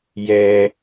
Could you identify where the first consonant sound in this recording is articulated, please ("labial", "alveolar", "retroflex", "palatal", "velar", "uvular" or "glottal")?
palatal